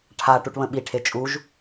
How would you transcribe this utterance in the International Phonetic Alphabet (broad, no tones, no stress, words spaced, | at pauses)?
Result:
ʈʰaʈuʈβə̃ ɓiʈʰe t͡ʃʼuʒ